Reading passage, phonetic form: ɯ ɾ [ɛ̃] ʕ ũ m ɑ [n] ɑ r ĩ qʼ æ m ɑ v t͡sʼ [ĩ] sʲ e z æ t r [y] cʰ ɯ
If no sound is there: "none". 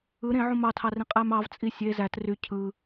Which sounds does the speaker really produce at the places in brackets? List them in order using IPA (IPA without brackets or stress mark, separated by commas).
ẽ, tʰ, i, y